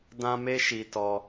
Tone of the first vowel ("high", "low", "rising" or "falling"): high